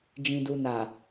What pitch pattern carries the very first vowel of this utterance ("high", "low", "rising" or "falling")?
low